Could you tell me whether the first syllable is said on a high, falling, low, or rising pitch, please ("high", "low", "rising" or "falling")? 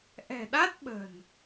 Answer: low